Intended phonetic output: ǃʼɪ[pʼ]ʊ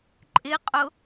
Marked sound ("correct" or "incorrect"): incorrect